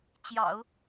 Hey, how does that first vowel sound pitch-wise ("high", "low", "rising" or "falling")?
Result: low